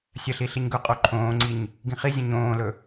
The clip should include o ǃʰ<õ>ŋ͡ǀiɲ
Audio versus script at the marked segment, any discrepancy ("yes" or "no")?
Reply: yes